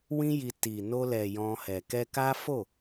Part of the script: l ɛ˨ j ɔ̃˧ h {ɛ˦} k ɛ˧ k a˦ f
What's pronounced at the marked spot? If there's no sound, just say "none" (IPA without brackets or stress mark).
ɛ˨